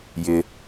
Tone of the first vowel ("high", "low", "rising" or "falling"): low